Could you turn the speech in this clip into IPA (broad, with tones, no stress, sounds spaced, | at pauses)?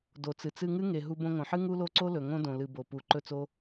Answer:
d o˨ t͡s ɨ˨ t͡s ɨ˧ ŋ ɨ˦ ŋ e˨ ɦ u˧ b õ˧ ŋ õ˨ ħ ɨ˦ ŋ u˦ l o˦ ǀ o˦ l ɵ˨ ŋ õ˦ d õ˨ l ɨ˨ b o˨ p u˨˦ ǃ ɵ˦ t͡s o˦